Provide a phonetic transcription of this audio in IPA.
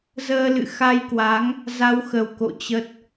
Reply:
z əː˧ l ɨ̰˧˨ x a˧ j k w a˨˦ ŋ | z a˧ w x ə˨˩ w k o̰˧˨ t͡ɕ ə˦˥ t̚

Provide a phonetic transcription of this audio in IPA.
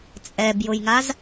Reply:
t͡sʼ ɛ b j ʊ j ŋ a z

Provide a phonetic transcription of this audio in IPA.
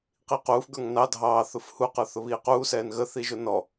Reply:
q i q uː f ɡ ə˞ ŋ n ɑ dʱ ɑː θ ʊ f h u q ə˞ θ ʊ β iː q uː s ɛː n ɣ ə θ i ʒ ʊ n ɔ

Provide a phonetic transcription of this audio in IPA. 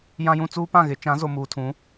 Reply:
j ã˦ j ũ˦ t͡s uː˦ p ã˦˨ ɣ ɪ˨˦ t͡ʃ ã˨˦ z o˨ m uː˨ tʰ ũ˨˦

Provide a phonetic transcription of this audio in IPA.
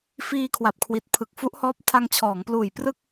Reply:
f iː˧ kʰ w a˨˩ p̚ kʰ w i˨˩ t̚ pʰ ɯ˨˩ k̚ f u˦˥ ʔ h ɔː˦˥ p̚ tʰ a˧ ŋ t͡ɕʰ ɔː˩˦ ŋ p l uː˨˩ j p r ɯ˥˩ k̚

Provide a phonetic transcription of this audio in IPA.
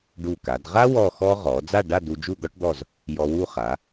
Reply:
ɖ u˧˩ k a˩˧ d ʁ a˥ w ɔ˥˧ x ɔ˥ ʁ ɔ˩˧ d͡z a˥˧ ɖ a˥˧ d u˧ d͡ʒ u˥˧ d̪ ɔ˥ ʈ d̪ ɔ˥˧ z | j ɔ˧ w u˥˧ χ a˩˧

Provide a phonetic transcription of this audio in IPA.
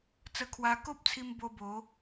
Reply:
t͡s ə˧ kʰ w a˧ k o˦ p̚ t͡sʰ i˧ m b o˧ b o˨˦

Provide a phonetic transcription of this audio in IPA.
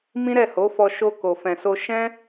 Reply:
m ĩ˦ ɾ ɛ˦˨ h o˨˦ f ɔ˧ ʃ o˧ k o˨ f ɛ̃˨ s o˧ ʃ ɛ̃˦

